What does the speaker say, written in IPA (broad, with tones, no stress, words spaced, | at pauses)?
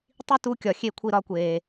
tˤi˦ tu˦kʲɒ˨ xʲe˦˨kʷʰi˦˨ɾɒ˦kʷeː˨